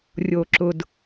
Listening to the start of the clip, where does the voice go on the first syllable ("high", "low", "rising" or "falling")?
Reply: low